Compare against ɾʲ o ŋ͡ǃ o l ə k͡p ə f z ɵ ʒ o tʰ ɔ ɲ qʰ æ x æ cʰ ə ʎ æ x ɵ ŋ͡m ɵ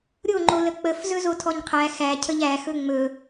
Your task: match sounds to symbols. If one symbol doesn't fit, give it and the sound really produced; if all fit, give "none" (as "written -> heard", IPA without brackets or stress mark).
ʒ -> z